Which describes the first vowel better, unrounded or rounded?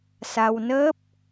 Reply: unrounded